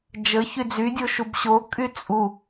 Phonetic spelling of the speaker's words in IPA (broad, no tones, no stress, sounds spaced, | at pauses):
d͡ʒ ə ç y d͡z y dʲ o ʃ u b ɕ o kʼ y t͡sʼ u